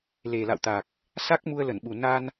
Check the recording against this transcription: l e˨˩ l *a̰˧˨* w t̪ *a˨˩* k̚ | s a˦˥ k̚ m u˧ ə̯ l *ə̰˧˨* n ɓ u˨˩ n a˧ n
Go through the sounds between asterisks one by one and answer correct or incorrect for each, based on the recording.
correct, correct, incorrect

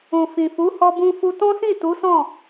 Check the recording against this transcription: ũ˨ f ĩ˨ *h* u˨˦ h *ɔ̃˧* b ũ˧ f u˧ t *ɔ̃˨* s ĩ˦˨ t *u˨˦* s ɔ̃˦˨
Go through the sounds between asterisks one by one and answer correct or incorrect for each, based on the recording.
incorrect, incorrect, incorrect, correct

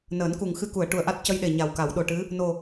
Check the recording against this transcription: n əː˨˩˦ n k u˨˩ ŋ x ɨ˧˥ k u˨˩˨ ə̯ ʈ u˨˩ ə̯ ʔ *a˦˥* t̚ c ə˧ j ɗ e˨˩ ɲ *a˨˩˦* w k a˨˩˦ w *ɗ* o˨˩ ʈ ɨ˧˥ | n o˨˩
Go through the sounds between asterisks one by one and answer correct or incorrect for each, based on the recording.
correct, incorrect, correct

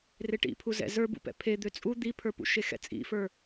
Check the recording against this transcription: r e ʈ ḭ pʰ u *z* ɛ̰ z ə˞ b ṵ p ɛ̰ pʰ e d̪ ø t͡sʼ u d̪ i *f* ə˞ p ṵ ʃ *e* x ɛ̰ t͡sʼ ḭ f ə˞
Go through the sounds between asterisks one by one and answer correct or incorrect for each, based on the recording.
correct, incorrect, correct

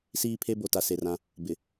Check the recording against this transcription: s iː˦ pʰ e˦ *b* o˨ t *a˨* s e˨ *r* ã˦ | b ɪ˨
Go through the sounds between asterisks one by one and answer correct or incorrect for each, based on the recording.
correct, correct, correct

